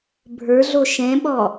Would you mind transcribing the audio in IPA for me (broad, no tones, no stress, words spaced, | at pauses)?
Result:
bʱə˞ɮo ʃɛ̃ɓɔ